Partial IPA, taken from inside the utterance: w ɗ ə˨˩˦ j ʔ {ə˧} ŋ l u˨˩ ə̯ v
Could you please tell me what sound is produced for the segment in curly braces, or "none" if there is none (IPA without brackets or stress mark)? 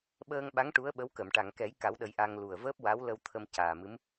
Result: a˧